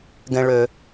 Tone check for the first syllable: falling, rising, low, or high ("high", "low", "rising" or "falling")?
low